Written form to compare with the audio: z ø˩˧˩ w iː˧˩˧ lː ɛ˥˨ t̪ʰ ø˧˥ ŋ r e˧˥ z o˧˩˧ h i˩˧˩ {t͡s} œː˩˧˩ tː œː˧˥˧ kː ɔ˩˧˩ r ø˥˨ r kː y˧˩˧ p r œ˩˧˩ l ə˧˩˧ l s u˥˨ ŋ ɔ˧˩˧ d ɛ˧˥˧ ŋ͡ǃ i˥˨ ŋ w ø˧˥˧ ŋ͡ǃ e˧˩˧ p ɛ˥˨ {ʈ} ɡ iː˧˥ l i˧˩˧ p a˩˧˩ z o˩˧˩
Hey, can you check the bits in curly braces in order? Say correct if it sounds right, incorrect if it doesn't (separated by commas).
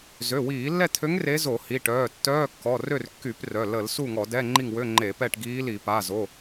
incorrect, correct